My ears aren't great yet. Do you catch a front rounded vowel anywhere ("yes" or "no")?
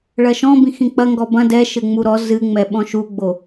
no